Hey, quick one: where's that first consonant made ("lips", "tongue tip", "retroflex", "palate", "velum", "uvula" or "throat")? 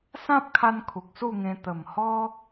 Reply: tongue tip